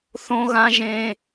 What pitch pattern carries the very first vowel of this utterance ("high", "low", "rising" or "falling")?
high